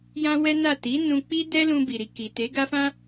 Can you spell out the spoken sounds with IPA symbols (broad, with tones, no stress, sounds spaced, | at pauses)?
j ã˦ w ɛ˦ n a˦˨ t i˨˦ n ũ˧ k͡p i˦ d ɛ˦ l ũ˧ b i˨ ɾ i˨ k i˨ t e˨˦ ɡ a˦ f ã˦